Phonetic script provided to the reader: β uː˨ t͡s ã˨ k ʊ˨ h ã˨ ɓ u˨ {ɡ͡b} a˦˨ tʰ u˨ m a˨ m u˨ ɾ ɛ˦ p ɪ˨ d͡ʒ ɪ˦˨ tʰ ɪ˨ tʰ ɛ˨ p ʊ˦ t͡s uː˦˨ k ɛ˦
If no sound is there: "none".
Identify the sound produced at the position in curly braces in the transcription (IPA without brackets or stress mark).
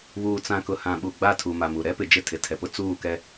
ɡ͡b